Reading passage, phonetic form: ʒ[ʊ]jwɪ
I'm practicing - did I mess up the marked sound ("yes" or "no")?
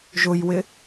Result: no